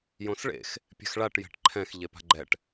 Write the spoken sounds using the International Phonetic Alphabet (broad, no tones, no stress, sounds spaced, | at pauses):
j õ s ɭ ḛ x | pʲ ɛ̤ x ɭ a ʈ j ɛ̤ ʈ ǃʰ ɛ̃ x ʎ e p a̤ ɡ͡ǃ ɛ ʈ